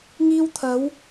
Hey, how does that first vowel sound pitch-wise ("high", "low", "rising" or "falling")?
high